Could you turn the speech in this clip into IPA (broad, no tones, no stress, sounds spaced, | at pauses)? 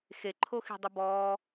x e ǃʰ o x i̤ dˤ ɨ b ɔː